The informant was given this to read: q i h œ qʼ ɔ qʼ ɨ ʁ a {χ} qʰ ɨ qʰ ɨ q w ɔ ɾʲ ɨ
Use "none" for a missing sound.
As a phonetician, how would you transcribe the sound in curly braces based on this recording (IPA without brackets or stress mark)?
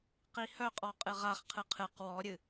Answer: χ